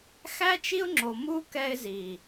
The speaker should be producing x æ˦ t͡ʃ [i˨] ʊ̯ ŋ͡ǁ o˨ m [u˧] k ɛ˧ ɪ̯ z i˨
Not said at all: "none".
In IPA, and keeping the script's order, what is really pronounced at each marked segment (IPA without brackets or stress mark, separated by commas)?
i˦, u˦